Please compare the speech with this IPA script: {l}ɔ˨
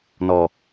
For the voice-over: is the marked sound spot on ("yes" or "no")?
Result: no